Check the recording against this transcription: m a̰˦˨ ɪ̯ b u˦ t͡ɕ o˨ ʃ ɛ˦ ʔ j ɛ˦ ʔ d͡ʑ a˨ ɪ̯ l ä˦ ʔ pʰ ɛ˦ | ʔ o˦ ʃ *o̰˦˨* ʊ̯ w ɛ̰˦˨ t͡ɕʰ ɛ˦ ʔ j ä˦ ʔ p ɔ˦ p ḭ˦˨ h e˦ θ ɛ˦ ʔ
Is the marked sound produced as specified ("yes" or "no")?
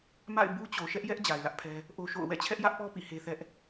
yes